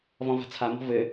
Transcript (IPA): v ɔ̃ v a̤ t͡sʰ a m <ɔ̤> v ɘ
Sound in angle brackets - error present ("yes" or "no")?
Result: no